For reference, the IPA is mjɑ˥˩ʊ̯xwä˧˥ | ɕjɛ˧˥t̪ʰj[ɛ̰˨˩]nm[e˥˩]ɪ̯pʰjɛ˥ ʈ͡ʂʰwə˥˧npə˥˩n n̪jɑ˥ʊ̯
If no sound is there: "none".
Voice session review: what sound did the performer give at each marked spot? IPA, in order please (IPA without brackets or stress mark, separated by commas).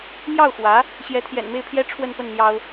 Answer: ɛ̰˨˩, e˥˩